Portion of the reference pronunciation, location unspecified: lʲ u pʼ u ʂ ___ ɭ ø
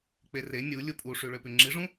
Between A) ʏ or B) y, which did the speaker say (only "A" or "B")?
B